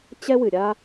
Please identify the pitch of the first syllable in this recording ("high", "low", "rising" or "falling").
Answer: high